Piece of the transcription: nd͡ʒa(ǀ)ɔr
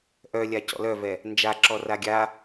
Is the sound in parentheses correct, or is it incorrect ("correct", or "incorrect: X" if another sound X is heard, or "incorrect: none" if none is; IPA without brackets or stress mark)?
incorrect: ǁ